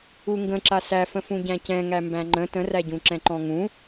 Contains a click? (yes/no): yes